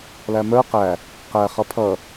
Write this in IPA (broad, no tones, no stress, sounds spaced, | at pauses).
l æ m ə˞ q æ | q æ χ ʌ pʰ ʌ